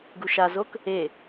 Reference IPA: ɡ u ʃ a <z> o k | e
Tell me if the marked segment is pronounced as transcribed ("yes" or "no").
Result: yes